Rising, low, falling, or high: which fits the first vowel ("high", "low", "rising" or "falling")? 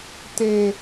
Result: high